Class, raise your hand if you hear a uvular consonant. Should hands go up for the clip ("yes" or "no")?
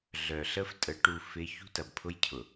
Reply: no